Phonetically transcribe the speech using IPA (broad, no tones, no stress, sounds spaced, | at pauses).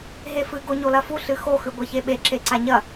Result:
ɦ e f ɨ ɡ o ɲ o l ɐ f u ɬ ɨ x o x ʉ ɡʷ e ç e ɓ e ǁ e ǀ a ɲ ɐ